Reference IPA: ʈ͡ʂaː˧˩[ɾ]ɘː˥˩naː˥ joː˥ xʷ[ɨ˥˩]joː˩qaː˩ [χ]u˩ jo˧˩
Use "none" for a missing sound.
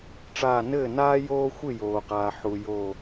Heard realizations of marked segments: n, ɨ˥˩, ħ

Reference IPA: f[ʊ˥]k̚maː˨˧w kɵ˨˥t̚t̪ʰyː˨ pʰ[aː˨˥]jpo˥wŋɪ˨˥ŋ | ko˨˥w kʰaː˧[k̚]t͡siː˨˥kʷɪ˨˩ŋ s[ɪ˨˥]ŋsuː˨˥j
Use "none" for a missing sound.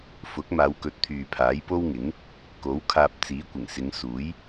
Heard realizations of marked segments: ʊ˨˥, aː˨˥, p̚, ɪ˨˧

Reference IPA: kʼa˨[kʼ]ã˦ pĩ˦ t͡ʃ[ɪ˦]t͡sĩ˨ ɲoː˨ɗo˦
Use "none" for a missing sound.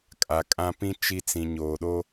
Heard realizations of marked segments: kʼ, i˦

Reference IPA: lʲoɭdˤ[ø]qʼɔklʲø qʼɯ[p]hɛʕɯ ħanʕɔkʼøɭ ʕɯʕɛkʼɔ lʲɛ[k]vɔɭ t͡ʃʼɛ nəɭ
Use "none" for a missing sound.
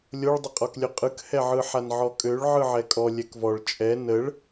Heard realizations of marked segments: ə, k, k

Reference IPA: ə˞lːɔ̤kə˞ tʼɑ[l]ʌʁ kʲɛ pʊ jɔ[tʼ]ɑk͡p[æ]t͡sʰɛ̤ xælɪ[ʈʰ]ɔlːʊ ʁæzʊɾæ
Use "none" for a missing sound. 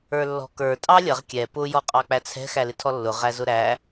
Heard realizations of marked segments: lʲ, qʼ, æ, tʰ

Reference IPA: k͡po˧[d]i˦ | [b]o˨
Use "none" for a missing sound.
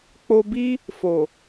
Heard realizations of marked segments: b, f

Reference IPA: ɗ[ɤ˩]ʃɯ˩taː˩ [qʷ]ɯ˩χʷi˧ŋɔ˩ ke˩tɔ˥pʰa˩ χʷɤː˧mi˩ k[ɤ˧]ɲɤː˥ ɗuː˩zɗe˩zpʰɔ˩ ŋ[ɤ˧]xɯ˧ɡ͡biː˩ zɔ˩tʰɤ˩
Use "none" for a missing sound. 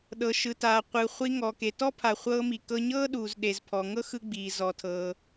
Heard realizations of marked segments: ɤ˩, qʷ, ɤ˧, ɤ˥

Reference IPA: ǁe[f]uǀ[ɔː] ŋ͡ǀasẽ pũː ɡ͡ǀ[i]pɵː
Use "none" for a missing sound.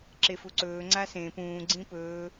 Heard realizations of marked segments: f, ɵː, ĩ

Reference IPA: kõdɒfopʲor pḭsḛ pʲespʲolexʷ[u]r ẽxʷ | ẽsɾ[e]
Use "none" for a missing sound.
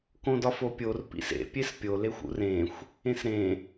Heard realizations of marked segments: ṵ, ẽ

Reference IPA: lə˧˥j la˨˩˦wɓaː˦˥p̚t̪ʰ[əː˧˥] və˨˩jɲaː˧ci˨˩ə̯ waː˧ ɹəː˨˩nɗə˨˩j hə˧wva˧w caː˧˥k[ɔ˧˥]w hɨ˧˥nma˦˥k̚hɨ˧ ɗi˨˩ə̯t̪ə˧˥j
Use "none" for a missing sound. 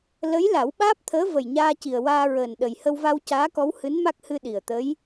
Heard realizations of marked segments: əː˧˥, ɔ˧˥

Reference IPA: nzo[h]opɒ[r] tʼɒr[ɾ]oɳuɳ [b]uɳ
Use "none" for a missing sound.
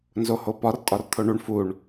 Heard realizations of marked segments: h, r, t̪ʰ, f

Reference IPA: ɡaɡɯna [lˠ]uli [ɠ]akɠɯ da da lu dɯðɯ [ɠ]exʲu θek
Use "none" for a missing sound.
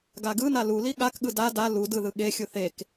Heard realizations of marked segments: l, ɠ, ɠ

